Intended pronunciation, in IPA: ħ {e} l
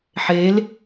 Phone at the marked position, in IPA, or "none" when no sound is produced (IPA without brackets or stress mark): e